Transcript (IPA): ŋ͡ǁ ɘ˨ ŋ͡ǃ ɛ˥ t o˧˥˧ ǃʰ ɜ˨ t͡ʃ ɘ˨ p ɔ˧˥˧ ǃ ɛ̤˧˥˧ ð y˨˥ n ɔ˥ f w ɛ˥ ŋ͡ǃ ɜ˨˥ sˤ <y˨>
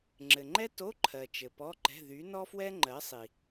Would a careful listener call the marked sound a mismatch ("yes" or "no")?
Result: yes